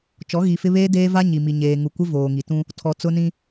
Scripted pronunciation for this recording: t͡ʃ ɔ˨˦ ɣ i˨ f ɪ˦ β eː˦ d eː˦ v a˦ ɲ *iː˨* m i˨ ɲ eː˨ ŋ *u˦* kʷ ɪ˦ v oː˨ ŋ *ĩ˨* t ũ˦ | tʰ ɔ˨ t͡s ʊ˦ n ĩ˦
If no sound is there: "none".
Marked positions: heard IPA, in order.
i˨, u˨, i˨

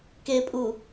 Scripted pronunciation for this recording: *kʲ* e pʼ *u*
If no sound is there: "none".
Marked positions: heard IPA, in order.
k, u

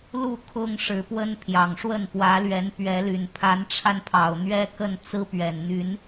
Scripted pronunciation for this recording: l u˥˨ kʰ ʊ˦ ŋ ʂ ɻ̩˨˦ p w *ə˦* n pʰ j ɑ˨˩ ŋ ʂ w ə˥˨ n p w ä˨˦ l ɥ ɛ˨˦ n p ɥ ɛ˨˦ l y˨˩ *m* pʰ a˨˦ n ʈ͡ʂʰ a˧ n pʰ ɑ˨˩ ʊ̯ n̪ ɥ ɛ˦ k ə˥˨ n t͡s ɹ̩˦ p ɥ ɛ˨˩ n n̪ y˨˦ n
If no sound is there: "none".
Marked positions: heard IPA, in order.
ə˦, n

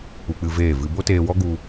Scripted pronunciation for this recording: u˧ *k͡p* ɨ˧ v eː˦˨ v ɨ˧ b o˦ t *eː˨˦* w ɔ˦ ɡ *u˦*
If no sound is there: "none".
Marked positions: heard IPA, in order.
k͡p, eː˧, u˧

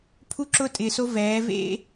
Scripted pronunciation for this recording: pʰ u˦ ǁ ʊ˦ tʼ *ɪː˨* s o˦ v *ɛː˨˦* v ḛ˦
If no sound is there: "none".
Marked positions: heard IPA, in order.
ɪː˨, ɛː˨˦

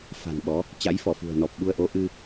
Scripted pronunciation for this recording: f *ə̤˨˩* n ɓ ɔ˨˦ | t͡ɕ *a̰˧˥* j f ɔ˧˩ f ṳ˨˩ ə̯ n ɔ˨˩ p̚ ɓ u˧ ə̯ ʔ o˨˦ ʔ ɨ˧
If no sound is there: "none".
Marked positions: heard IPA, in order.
a̤˨˩, a̰˧˥

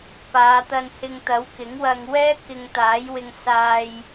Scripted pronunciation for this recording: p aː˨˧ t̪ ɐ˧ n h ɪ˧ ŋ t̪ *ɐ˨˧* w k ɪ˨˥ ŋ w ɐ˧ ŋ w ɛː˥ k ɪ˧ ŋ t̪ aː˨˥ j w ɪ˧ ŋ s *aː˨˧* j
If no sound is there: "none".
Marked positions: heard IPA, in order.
ɐ˨˥, aː˧

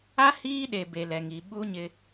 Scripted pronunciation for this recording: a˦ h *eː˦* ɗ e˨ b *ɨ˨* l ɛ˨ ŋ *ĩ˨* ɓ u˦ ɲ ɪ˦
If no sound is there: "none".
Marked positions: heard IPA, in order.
iː˦, e˨, i˨

